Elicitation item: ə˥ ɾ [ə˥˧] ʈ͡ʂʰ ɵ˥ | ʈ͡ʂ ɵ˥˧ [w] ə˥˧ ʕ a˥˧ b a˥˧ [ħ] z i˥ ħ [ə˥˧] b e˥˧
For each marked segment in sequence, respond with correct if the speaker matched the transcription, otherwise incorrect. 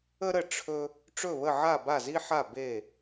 correct, incorrect: β, incorrect: none, incorrect: a˥˧

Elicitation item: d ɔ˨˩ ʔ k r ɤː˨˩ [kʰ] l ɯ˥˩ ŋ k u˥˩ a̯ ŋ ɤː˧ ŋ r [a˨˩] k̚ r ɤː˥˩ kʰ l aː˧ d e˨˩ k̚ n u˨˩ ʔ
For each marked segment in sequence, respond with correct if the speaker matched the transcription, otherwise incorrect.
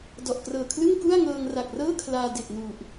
correct, correct

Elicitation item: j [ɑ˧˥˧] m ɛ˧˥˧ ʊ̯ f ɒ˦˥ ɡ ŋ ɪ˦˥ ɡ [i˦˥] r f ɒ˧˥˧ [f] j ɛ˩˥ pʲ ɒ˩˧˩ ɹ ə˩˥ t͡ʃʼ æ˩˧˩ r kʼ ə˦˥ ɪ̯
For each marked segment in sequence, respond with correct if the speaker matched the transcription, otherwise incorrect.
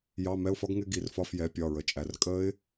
correct, incorrect: i˧˩, correct

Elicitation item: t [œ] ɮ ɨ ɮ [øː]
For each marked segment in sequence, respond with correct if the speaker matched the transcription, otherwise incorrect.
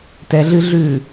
incorrect: ɛ, incorrect: ʉː

